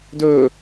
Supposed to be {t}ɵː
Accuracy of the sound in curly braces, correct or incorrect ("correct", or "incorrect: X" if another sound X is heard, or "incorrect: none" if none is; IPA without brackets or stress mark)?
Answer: incorrect: d